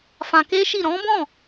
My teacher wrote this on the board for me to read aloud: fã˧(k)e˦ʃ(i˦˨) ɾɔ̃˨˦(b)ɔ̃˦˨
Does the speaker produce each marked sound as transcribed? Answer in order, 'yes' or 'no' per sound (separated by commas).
yes, yes, yes